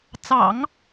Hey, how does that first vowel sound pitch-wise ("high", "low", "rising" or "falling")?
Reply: low